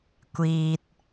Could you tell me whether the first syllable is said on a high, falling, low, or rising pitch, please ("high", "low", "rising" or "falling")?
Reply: low